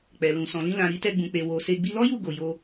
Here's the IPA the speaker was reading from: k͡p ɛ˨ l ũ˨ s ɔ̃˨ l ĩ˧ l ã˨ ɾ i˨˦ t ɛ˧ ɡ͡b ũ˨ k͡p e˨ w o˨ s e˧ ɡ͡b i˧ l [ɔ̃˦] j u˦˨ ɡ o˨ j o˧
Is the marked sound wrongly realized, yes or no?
yes